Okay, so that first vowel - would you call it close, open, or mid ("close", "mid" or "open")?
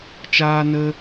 open